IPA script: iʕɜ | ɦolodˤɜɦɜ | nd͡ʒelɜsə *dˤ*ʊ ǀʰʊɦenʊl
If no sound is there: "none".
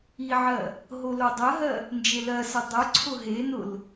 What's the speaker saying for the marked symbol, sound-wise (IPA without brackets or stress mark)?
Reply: dˤ